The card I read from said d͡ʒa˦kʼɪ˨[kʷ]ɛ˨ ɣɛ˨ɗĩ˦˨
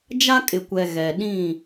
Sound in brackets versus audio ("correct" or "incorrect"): correct